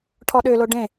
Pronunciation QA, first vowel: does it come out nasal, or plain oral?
oral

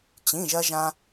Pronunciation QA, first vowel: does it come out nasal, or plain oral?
nasal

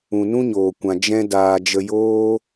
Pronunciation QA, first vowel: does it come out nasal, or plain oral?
nasal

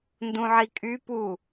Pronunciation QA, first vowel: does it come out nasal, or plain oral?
nasal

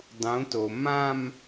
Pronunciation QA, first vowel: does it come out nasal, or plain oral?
nasal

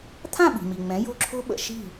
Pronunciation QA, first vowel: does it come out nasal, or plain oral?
nasal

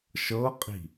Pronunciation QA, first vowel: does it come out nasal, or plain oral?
oral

